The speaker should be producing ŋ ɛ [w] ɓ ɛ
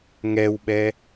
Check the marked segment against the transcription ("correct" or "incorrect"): correct